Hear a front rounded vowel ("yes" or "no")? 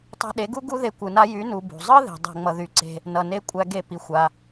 yes